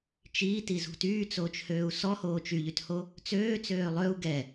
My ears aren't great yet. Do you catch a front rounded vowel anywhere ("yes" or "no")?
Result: yes